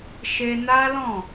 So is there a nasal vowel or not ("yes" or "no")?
yes